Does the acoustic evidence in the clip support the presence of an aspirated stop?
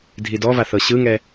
no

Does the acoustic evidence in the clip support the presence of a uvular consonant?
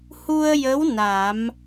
no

